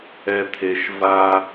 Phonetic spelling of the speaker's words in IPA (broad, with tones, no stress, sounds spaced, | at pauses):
ɛ˨ t̪ʰ e˨ ʃ v a˦